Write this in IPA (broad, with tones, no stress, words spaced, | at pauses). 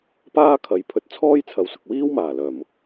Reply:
paː˥kʰɐ˨jpʰɵ˧t̚ t͡sʰɔː˥jt͡sʰɐ˨wsʊ˨k̚wiː˥w maː˨˩lœː˨˩mʊ˨k̚